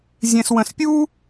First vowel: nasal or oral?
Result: nasal